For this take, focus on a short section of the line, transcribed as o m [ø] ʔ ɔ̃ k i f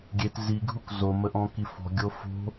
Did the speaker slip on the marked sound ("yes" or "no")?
yes